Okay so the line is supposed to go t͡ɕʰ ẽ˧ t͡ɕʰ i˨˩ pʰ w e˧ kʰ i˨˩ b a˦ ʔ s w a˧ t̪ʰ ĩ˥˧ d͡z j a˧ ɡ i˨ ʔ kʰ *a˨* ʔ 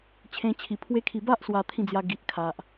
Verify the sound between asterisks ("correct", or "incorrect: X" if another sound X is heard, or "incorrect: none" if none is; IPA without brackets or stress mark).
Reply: correct